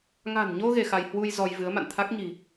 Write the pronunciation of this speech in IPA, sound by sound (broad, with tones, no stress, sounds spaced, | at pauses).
ŋ a̤˨˩ n ɲ o˧ ɣ e˧ x a˧ j h w u˧ j z ɔ˧ j v ɨ˨˦ ə̯ m a̰˧˨ n t̪ʰ a˦˥ k̚ ɲ i̤˨˩